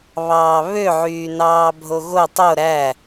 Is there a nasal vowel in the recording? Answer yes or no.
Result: no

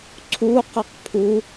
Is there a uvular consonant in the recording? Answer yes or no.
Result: yes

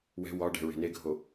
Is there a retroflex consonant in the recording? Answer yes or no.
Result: yes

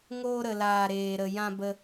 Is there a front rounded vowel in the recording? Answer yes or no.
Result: no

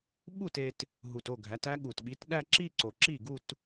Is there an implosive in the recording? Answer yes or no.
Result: yes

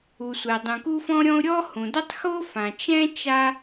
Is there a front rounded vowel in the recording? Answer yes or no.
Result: no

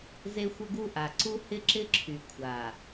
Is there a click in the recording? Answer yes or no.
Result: yes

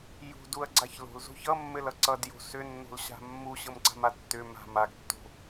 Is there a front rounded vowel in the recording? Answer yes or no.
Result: yes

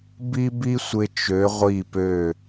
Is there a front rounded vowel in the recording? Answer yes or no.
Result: yes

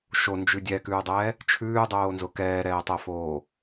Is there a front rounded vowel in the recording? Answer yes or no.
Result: no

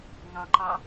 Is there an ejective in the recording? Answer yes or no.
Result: no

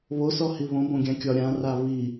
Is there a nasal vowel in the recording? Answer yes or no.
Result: yes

